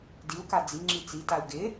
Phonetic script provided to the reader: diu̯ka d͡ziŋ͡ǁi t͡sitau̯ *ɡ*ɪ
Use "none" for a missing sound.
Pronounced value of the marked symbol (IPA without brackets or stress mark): ɡ